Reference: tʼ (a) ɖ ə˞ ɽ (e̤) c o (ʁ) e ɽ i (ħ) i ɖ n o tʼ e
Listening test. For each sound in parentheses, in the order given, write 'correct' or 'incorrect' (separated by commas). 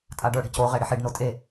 correct, correct, correct, correct